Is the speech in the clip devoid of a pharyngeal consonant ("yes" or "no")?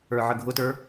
no